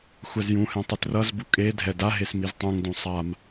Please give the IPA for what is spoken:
xʷ ɛ z j ũ h ɛ̃ tˤ i t r ʌ z b u kʼ e dʱ ɛ d a ɦ e s m i z tˤ ũ ŋ d ũ sˤ a m

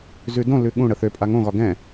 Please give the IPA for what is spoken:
z ʉ d õ l ʉ ɠ ũ ɽ ə θ ø pʼ a ŋ õ ɣ ɒ ɡ ɛ̃

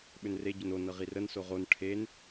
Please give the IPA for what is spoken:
ɓ ʏ n r e ɟ ʏ n o n ɤ ʁ i r ə n s o ʁ o n ʈʰ e n

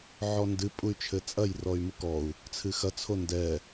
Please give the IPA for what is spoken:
ʕ ɔ n d ɨ pʼ u y̯ t͡ʃʰ ɘ t͡sʼ ɐ j r ɔ y̯ m u k ɔ u̯ | t͡sʰ ɨ x ɐ t͡sʰ o n d ɛ

